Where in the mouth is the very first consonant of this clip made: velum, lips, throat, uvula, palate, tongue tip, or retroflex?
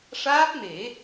retroflex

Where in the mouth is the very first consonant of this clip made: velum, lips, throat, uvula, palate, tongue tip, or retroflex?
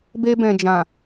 lips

